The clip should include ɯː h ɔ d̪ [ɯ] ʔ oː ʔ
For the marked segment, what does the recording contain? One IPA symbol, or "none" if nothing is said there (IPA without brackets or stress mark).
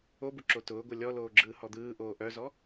ɯː